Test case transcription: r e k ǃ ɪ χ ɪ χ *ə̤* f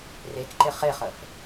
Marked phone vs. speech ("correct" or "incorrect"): incorrect